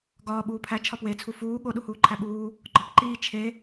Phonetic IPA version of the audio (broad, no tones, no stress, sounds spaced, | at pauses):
ɡ ɒː ɓ uː pʰ æ t͡ʃʰ ɒ p w e t͡sʰ u f uː ɠ o ɗ u h uː ǃʰ æ ɓ uː | ɡ͡ǃ ɒ p ǃ iː t͡ʃʰ e